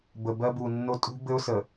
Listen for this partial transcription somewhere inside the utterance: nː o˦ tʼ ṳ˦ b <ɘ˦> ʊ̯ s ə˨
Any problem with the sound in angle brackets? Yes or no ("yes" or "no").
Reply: no